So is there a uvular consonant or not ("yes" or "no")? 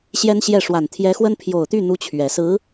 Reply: no